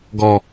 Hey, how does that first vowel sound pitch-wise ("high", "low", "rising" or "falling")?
low